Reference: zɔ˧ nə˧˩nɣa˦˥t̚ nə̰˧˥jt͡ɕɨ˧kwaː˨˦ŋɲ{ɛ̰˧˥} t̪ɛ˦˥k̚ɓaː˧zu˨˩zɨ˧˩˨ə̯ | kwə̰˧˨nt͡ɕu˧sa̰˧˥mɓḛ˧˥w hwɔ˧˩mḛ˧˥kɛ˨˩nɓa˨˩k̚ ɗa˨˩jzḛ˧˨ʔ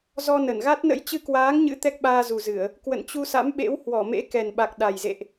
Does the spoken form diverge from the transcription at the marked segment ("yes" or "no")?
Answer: yes